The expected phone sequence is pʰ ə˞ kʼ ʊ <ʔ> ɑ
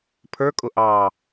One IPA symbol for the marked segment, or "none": ʔ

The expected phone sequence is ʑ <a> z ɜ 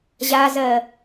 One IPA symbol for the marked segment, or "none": a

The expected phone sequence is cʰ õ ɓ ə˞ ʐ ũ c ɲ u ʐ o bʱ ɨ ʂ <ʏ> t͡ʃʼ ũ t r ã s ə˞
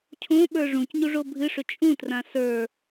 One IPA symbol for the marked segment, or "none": ʏ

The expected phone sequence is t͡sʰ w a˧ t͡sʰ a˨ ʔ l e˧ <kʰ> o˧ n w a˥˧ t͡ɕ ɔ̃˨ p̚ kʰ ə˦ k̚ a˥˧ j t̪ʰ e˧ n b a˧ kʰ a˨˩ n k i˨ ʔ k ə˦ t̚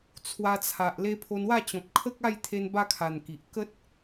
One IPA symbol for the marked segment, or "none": pʰ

